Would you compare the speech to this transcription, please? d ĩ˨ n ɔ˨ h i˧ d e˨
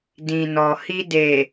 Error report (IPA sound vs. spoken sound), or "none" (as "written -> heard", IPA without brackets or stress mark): none